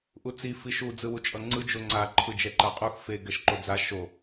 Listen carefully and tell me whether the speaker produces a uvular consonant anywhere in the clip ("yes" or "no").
yes